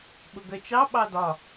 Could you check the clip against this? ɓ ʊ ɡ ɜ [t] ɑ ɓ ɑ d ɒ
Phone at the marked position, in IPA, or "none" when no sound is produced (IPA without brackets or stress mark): t͡ʃ